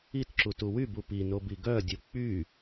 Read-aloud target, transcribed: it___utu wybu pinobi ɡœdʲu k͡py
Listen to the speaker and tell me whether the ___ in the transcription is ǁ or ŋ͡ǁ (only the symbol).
ǁ